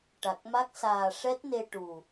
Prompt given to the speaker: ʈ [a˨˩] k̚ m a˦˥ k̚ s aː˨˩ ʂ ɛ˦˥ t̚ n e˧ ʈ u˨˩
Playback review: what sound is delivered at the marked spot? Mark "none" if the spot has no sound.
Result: a˨˩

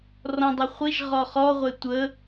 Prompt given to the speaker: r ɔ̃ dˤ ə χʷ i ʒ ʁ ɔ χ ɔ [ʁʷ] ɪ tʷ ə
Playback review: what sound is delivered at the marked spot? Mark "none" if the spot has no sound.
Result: ʁʷ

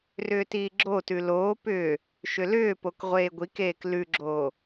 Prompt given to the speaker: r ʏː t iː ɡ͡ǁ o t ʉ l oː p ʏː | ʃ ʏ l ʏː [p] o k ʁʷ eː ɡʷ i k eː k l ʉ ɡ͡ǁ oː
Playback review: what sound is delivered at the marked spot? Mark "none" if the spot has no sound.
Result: p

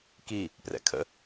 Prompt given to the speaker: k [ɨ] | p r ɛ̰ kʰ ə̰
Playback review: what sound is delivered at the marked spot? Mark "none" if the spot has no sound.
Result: i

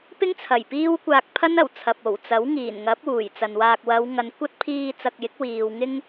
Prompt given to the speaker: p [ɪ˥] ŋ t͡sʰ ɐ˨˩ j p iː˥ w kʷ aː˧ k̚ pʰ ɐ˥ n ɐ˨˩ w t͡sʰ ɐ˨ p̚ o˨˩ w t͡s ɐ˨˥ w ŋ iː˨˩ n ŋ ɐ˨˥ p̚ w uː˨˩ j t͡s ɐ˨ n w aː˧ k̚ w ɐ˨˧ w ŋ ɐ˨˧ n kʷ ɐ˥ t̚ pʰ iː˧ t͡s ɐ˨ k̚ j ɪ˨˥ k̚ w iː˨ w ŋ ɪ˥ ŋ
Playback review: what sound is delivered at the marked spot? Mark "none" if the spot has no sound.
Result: ɪ˥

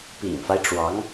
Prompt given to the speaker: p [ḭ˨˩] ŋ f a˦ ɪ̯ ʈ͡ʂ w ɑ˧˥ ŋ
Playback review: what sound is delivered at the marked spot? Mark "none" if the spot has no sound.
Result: ḭ˨˩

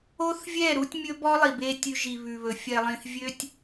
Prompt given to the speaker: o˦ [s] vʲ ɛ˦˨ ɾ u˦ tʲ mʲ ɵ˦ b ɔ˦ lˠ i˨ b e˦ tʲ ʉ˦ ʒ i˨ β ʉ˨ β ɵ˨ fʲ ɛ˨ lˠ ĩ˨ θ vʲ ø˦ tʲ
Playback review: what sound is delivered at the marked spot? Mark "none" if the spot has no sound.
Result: θ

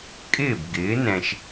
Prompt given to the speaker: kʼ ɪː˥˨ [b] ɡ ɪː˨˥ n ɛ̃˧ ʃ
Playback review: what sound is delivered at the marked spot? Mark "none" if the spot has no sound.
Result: b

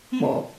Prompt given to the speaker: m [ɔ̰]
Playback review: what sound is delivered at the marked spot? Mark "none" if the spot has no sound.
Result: ɔ̰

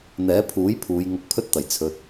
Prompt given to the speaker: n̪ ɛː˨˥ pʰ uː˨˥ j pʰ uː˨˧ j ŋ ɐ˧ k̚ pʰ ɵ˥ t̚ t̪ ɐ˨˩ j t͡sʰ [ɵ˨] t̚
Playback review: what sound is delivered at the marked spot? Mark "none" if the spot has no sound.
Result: ɵ˨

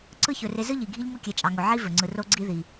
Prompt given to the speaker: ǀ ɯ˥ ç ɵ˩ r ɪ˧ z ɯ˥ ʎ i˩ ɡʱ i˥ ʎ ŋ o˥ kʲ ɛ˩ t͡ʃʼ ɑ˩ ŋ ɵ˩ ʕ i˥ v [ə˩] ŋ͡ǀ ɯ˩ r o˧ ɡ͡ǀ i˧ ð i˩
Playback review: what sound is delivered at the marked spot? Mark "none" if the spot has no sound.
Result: ɵ˩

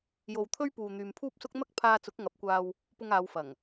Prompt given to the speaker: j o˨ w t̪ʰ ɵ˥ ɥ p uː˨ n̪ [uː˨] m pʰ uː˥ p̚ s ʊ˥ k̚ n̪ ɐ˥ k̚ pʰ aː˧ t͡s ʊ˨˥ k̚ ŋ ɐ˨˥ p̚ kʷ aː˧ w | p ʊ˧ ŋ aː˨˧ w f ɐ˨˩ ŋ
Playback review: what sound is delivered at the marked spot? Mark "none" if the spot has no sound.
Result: yː˨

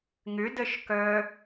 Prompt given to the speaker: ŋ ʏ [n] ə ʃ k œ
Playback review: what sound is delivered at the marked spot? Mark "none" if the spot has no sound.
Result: d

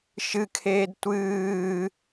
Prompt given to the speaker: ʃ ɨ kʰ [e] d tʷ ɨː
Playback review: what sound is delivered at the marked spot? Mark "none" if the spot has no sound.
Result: eː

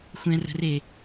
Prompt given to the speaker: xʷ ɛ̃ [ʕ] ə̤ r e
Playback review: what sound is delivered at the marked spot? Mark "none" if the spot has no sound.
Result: r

